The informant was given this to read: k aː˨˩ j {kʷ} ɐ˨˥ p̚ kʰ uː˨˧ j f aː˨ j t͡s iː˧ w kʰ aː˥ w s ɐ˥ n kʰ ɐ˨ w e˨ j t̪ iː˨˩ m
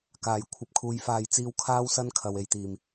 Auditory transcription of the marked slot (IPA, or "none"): kʷʰ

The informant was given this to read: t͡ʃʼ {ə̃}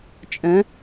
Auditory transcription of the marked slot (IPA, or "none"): ə̃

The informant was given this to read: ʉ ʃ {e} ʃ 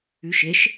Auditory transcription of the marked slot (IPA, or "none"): e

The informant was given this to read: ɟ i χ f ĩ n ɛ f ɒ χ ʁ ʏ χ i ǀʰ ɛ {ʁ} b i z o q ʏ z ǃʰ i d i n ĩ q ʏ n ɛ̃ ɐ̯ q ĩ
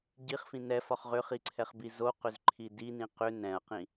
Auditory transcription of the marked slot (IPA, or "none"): χ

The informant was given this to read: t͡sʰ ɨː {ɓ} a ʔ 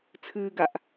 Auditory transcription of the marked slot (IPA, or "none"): ɡ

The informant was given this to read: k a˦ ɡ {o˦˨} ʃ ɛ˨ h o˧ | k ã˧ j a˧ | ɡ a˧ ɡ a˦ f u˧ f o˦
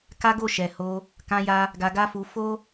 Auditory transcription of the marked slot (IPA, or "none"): o˦˨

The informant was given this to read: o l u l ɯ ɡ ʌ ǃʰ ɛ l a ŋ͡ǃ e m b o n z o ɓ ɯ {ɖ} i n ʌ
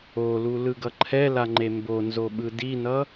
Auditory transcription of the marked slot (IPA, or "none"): d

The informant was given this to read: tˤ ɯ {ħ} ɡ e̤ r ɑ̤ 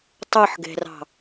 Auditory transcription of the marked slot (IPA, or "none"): ħ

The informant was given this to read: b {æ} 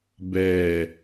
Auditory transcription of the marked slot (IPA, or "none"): ɛ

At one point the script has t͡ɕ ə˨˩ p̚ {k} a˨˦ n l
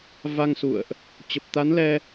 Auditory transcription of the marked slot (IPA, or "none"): t̪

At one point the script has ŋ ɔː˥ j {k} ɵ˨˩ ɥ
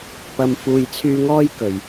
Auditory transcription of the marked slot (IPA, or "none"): k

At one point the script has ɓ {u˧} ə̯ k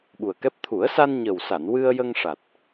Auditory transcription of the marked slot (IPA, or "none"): u˨˩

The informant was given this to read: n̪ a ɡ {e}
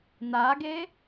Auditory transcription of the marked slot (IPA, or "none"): e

